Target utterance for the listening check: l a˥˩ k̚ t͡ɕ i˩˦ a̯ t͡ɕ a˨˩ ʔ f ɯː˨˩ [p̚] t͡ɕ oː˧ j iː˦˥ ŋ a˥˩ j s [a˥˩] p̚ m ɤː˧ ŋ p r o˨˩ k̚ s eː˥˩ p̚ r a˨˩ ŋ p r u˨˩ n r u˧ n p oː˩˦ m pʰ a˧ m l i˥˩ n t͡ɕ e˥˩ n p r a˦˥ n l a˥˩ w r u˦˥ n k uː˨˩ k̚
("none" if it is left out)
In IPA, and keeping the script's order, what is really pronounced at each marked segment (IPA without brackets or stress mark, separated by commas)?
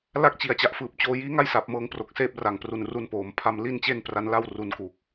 p̚, a˨˩